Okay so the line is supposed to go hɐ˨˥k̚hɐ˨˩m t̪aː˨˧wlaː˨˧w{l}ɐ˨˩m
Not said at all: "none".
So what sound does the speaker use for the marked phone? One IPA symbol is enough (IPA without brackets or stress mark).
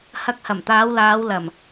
l